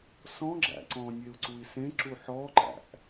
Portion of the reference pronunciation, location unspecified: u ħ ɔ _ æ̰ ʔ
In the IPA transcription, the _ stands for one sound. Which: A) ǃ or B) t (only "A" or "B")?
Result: A